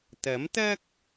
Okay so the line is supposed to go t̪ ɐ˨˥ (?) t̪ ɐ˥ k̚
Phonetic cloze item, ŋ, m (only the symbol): m